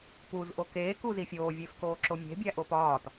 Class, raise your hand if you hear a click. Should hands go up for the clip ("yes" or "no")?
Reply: yes